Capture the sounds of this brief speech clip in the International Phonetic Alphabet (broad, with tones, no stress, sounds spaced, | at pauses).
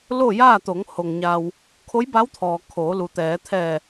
l o˥˨ j aː˥˨ t̪ o˩˧ ŋ h o˩ ŋ ɲ a˩ w | kʰ o˧˥ j b a˧˥ w t̪ʰ ɔː˩ kʰ oː˩˧ l u˩ t̪ ɛː˩˧ t̪ʰ ɛː˧˩